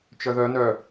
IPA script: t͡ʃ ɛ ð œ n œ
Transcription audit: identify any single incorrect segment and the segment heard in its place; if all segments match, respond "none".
ɛ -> œ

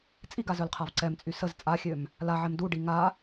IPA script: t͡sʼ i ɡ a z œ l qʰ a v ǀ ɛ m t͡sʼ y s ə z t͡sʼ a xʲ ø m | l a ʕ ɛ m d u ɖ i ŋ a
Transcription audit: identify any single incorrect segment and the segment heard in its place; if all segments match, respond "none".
none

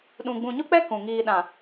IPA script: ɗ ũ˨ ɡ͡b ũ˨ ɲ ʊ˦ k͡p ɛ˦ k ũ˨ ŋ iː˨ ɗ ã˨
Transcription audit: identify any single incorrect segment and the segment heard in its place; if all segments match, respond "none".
none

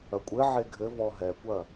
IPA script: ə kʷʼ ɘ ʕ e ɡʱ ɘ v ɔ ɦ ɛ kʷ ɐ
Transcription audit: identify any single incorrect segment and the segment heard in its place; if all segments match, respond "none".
ə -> ɐ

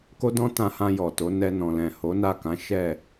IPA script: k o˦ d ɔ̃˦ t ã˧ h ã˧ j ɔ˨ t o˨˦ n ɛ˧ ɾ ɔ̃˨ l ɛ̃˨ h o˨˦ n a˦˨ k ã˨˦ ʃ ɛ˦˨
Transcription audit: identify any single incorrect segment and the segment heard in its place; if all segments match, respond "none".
ɾ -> n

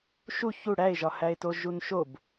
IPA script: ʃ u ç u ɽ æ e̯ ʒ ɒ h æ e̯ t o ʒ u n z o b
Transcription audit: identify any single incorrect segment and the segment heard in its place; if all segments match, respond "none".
z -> ʃ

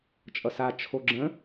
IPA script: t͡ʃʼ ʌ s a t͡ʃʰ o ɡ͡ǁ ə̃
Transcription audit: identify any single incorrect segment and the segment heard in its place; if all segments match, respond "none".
none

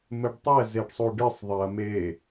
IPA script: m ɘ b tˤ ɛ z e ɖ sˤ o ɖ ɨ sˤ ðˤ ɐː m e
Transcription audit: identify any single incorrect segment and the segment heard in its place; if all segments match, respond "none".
b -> ɖ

